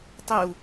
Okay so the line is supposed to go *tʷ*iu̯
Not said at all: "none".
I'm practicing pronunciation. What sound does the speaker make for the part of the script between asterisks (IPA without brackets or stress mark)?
tˤ